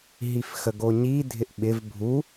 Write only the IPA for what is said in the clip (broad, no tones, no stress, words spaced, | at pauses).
ɦifxəɡoɲi dʱɪʔɓɪv bʱu